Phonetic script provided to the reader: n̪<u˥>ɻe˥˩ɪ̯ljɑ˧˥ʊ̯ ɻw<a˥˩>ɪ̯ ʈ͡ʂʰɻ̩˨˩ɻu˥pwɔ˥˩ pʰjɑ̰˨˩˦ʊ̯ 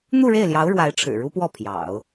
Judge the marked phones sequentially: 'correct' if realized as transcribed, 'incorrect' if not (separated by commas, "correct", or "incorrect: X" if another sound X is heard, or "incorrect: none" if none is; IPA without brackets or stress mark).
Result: incorrect: u˥˧, incorrect: a˧˥